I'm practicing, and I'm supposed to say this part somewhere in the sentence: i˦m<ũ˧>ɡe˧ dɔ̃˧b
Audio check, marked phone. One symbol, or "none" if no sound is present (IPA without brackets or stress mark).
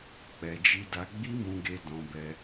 ũ˧